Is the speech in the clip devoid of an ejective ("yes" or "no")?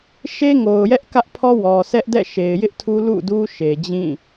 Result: yes